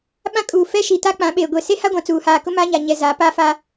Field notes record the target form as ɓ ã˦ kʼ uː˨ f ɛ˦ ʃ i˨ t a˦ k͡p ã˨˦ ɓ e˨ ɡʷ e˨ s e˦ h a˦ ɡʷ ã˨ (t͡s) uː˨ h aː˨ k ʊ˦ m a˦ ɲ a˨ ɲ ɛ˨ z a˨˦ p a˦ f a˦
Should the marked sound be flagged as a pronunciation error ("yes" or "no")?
no